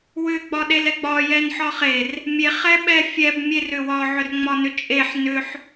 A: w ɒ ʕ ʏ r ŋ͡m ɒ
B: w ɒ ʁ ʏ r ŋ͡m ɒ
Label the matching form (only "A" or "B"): A